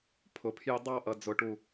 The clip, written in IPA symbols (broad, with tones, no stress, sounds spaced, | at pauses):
pʰ ʊ˨˩˦ pʰ j ɪ˥˧ dˤ ɑ˥˧ ʔ ʌ˨ d͡z ʊ˨˩˦ ʈ u˨